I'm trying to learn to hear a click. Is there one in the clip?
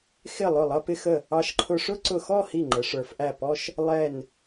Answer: yes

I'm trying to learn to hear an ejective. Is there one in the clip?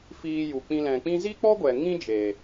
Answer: no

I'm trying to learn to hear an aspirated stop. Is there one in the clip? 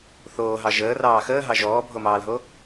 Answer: no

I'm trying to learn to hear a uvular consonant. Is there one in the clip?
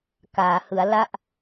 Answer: no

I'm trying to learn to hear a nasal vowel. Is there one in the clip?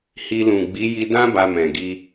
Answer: yes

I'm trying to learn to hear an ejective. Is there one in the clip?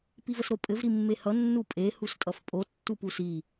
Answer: yes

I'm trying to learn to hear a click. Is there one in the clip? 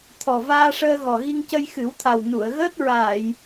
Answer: no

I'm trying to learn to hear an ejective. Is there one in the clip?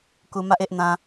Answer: no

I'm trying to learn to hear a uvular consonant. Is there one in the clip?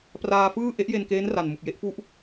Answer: no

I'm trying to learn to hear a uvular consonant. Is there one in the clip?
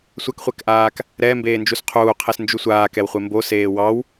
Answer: yes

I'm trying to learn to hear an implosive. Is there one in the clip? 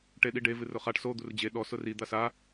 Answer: yes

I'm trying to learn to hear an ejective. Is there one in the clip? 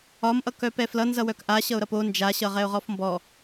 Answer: no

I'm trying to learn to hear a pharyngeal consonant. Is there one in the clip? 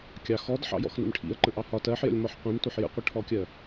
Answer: yes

